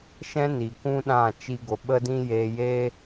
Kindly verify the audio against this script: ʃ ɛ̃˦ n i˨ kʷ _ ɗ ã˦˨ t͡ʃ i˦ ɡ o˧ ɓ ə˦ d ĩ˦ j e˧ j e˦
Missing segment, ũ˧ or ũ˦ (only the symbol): ũ˦